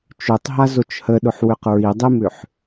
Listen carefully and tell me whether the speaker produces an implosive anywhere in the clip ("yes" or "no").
yes